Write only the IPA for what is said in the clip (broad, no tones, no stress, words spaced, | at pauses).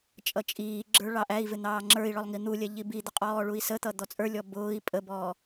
t͡ʃʼʌt͡ʃʼiːɡ͡ǁə˞ ɭɑʔæi̯vɪ n̪ɑːŋ͡ǁə˞i̯ɭɔlˠ ŋin̪ulʲɛ ʎibid̪ə qʼɔːɭui̯sət̪ʌ d̪ɔt͡sʼə˞lʲɔ bʊːi̯ pʼəbɔː